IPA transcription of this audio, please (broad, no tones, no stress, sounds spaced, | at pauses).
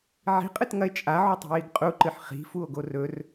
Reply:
ʕ i̤ qʼ ɨ t ŋ ɐ e̯ t͡ʃʼ a ʕ u tˤ i̤ j i ɡ qʼ u ǃ ɨ ħ χ i̤ f u o̯ ɡ o r ɵ r